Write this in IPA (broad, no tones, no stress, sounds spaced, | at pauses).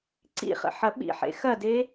ǀ ḭ χ ə̰ ħ ɐ ɓ ḭ ħ ḛ x ɐ d e